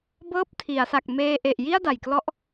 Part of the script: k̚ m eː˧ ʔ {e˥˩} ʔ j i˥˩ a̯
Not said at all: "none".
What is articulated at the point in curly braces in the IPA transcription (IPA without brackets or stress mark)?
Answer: e˨˩